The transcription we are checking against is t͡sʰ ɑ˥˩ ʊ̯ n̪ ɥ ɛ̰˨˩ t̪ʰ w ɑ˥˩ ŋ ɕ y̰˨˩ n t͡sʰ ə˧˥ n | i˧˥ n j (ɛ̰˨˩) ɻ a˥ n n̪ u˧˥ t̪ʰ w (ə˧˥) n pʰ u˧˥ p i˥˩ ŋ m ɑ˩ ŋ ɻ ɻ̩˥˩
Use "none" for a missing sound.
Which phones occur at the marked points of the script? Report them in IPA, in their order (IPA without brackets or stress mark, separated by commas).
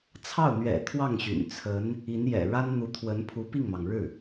ɛ̰˨˩, ə˧˥